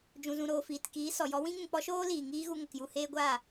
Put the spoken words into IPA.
d͡ʒũ˨zũ˨ɾoː˨ fiː˨tkiː˨˦sɔ˨jɔ˦ wĩ˦ŋũ˨k͡pɔ˦ʃoː˦ liː˨ŋiː˦ɣu˧ ŋə˨kju˦˨heː˦ɡʷaː˦˨

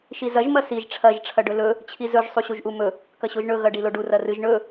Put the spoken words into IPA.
ʃizɐʒ mɐsiʒ ʈ͡ʂʰɐʒ ʈ͡ʂʰɐɖɵlɵ | t͡ɕʰizɵʒ sˤuɕuʒʔumɵ | kɐɕoʒɳɵ ɣɐɖiloɖu rɐrɨʒ ɳɵ

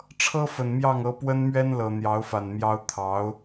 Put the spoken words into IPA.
ʈ͡ʂʰɤ˥fə˨˩nmjɑ˥˩ŋɤ˧˥ pwə˥nmɥɛ˥nlɤ˨˩ n̪jɑ˧˥ʊ̯fa˨˩nmjɑ˥ʊ̯ t̪ʰɑ˧˥ʊ̯

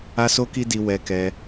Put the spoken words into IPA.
a˦so˦ki˦di˧ wɛ˧kɛ˧

